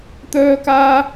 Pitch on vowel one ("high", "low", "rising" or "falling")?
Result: high